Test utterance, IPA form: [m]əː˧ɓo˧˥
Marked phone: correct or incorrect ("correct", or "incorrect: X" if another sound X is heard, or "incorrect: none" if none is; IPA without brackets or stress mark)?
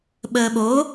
incorrect: ɓ